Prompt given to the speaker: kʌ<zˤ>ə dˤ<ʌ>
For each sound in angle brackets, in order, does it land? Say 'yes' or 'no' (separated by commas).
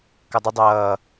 no, no